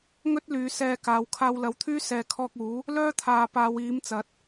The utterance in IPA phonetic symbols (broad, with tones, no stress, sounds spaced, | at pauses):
ŋ ɵ˥ t̚ l yː˨˧ s ɛː˧ k aː˨˧ w kʰ aː˧ w l ɐ˨˧ w t̪ʰ yː˥ s ɛː˨˧ kʰ ɔː˧ k̚ uː˨˥ | l œː˥ t̪ʰ aː˨˧ p aː˨˧ w iː˨˥ m t͡s ɐ˨˥ t̚